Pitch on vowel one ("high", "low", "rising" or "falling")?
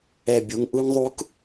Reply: falling